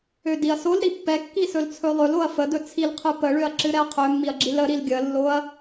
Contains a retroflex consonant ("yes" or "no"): yes